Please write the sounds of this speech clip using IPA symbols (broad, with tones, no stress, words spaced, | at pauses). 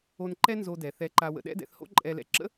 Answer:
o˧nǃɛ˥nzo˧dɛ˩ θɛ˧ǃa˧ wə̰˧ɗɛ̰˥dɛ̰˧θho̰˥ ǃʼɛ˧lɛ̰˧ ǁə̰˥